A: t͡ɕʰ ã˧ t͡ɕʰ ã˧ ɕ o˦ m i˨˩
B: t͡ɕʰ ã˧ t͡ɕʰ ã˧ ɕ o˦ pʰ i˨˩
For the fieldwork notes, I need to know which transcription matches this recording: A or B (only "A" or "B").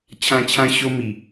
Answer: A